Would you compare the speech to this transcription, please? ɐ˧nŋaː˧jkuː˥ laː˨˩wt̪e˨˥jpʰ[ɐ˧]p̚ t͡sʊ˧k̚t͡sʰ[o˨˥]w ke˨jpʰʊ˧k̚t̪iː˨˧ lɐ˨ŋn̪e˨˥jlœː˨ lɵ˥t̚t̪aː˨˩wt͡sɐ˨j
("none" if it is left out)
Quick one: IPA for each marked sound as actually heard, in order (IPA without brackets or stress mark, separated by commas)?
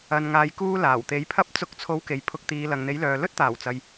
ɐ˥, o˨˥